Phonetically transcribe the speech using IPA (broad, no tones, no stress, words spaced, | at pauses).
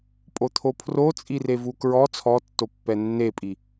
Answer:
pʼot̪ʰopʰrot͡sʼi revukɹɔ t͡sʰɔtːopːɛ nːepʼi